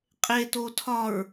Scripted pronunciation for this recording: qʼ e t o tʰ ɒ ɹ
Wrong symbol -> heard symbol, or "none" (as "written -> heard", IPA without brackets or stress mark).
none